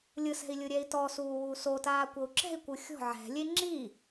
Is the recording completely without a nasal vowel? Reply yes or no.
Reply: yes